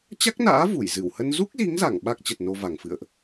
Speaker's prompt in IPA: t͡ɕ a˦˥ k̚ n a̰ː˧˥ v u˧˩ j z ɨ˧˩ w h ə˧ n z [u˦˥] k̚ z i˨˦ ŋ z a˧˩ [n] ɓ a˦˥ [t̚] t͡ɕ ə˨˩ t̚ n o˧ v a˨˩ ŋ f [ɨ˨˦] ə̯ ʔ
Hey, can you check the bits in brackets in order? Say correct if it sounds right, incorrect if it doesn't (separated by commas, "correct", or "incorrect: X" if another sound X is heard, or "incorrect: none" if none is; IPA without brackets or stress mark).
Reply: correct, incorrect: ŋ, incorrect: k̚, incorrect: ɨ̰˧˨